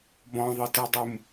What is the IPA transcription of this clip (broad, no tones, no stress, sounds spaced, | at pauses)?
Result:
b ɔ̃ ðˤ ɯ t ɯ dˤ ɯ m